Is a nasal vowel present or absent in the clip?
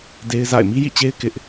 absent